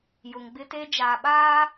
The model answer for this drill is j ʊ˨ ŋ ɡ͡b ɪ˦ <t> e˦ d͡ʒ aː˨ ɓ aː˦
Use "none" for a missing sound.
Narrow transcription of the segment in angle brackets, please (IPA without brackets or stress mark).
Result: t